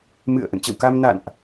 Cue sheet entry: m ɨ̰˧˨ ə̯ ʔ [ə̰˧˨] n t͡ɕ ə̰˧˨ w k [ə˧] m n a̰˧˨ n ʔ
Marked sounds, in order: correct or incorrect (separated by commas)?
correct, incorrect